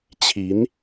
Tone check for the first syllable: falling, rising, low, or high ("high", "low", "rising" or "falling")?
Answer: rising